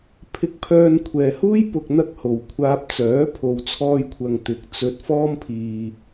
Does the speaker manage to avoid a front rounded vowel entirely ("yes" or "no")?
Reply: no